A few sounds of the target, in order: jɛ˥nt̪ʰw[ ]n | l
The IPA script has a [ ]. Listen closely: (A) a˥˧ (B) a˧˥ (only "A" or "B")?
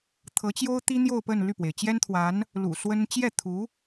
B